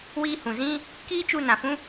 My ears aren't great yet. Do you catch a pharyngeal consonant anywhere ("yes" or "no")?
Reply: no